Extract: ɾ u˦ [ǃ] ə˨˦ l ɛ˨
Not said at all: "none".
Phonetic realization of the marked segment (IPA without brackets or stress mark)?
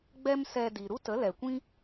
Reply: t